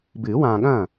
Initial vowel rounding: unrounded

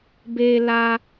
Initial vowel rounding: unrounded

